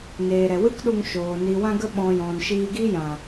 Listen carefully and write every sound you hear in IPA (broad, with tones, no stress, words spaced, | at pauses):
neː˨ɾɛ˨wɨ˦kɗu˧ŋ ʃoː˨ ni˨wã˧ɡə˧ɓɔ̃˨ jɔ̃˨nʃiː˧ɡi˦ jã˨